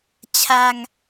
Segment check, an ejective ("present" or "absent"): absent